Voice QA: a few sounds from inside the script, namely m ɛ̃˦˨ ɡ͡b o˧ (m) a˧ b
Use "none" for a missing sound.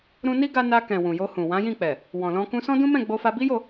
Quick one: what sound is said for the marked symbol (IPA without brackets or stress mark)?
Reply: f